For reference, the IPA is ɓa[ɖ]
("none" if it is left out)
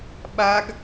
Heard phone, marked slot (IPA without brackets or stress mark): ɡ